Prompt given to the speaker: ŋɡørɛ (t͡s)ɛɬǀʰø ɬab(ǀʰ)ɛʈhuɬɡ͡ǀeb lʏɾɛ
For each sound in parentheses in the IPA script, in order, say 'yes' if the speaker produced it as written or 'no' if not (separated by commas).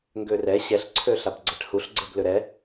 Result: no, no